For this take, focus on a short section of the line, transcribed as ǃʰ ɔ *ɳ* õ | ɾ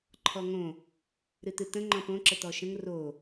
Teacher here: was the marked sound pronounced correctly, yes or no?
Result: no